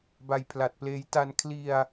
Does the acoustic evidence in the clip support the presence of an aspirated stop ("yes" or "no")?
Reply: yes